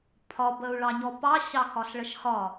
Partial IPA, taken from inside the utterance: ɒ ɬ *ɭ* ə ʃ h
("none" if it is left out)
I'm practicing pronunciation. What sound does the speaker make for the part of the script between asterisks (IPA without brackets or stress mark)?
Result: ɭ